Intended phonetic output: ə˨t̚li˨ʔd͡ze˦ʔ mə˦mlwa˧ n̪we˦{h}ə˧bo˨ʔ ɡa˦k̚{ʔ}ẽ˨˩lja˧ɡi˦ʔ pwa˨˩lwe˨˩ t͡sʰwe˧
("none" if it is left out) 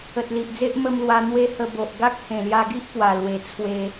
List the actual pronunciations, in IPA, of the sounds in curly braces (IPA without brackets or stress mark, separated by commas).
h, h